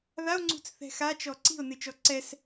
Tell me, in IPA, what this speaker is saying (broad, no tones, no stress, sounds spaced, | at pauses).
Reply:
ð a o̯ ŋ͡ǀ ṳ t͡s θ ɛ̤ x a t͡ʃ ɔ ǀ i̤ o̯ n ɨ t͡ʃ ɔ ǀ ɛ s